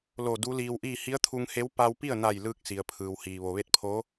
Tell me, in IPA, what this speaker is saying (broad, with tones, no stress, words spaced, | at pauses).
lo˧˩du˧˥liː˧wʔiː˥˨ hi˧˥ə̯t̪ʰu˧ŋhe˧˥w pa˧wpi˥˨ə̯na˧˩j lɯː˧k̚si˩ə̯pʰɯː˩whiː˩ ʋo˩ʋe˧˥t̚pʰoː˧˥